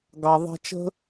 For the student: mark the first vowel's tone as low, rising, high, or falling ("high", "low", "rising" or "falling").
low